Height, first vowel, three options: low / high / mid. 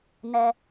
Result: mid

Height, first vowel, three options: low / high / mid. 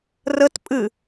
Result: mid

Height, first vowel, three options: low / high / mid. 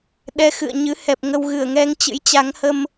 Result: mid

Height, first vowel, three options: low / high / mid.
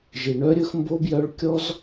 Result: high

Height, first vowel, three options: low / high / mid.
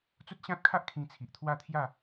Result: high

